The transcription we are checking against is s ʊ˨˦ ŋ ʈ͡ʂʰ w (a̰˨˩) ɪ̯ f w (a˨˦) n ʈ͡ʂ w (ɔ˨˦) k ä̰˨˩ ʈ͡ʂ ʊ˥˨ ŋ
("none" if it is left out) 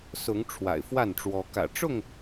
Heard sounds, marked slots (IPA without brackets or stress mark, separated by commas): a̰˨˩, a˥˨, ɔ˨˦